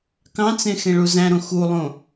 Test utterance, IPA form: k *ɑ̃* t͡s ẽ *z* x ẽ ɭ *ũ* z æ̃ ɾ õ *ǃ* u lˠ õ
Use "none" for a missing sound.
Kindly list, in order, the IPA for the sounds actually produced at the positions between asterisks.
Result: ɑ̃, none, u, x

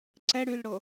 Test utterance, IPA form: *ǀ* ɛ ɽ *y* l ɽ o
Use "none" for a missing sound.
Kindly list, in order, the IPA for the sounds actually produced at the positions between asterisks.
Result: ǀ, y

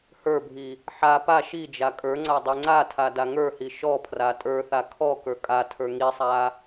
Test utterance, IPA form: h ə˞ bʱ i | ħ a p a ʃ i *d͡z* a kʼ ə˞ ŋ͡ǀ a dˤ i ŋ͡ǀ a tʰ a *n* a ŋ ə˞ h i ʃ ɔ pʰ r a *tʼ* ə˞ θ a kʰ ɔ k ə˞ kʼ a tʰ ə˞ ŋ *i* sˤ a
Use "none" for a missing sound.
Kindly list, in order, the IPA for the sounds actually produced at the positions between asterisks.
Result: d͡ʒ, d, tʼ, i

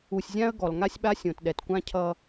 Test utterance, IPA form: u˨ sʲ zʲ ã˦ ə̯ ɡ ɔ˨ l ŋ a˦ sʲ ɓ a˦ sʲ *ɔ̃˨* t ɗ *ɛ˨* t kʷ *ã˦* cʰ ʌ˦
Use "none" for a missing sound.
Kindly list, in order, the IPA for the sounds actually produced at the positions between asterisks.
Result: õ˨, ɛ˨, ã˦

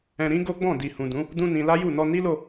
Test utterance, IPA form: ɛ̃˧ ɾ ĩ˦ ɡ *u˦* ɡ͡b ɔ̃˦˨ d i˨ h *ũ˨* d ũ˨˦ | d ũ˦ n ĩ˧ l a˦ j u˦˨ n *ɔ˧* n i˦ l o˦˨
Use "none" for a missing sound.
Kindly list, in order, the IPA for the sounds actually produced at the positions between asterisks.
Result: o˦, ũ˨, ɔ˧

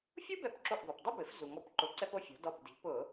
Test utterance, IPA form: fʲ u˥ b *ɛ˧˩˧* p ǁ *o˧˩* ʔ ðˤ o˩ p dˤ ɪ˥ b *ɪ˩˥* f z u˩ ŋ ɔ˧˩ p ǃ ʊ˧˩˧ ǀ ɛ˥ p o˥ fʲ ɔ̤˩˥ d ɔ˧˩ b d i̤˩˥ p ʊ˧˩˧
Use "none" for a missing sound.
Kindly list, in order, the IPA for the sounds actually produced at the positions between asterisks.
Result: ɛ˧˩, o˧˩, ɪ˩˥

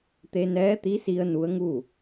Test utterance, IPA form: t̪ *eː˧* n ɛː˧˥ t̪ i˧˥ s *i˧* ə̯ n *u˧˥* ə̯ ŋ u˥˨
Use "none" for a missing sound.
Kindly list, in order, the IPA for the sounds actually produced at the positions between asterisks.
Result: e˧, i˧, u˧˥

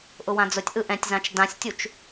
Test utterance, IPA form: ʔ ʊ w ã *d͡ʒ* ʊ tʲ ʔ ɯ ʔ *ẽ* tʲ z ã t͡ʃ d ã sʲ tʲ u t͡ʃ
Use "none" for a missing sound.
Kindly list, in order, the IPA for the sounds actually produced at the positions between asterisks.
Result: d͡z, ɛ̃

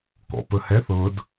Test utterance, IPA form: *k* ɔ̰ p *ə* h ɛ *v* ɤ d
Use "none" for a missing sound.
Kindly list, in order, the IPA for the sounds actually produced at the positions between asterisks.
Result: k, ə, θ

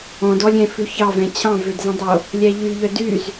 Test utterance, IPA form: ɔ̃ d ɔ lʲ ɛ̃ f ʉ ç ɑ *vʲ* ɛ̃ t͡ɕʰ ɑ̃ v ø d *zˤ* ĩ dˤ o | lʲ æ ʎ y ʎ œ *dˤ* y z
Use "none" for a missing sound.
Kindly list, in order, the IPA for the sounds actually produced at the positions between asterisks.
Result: v, z, d

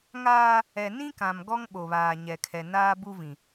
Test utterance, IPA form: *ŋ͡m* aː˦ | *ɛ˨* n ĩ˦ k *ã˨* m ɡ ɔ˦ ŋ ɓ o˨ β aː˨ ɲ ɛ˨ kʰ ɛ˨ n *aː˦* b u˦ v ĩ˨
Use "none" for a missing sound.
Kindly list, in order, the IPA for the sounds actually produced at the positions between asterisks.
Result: ŋ, ɛ˨, ã˨, aː˦

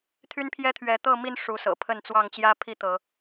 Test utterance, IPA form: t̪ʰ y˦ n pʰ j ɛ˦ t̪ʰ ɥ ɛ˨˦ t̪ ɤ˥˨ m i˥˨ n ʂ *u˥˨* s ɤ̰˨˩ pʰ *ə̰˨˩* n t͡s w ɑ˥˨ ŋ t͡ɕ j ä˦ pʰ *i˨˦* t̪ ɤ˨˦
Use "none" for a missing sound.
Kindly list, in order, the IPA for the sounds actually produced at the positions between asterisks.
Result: u˨˦, ə˥˨, i˥˨

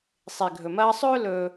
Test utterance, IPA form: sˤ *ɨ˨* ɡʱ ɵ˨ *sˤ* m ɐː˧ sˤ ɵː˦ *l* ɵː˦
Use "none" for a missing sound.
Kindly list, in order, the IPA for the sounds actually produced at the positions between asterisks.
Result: e˨, none, l

